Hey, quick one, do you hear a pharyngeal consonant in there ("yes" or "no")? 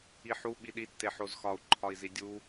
yes